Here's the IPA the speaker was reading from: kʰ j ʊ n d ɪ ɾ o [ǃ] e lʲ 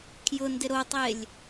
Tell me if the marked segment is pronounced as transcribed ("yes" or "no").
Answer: no